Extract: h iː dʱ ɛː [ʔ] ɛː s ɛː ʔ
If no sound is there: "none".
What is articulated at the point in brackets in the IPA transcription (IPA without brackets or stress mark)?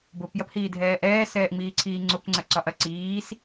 ʔ